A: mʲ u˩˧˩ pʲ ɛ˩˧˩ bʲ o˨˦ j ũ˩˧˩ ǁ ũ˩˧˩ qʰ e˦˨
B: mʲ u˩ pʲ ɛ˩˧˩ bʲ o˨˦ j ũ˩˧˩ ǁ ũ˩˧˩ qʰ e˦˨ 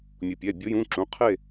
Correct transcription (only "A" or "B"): B